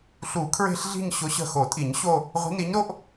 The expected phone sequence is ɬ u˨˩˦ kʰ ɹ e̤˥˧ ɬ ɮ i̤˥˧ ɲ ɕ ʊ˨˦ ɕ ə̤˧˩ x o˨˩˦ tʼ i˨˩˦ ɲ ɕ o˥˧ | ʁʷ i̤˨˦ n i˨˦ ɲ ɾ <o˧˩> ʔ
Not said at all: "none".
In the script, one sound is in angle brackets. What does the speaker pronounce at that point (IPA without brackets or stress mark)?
o˥˧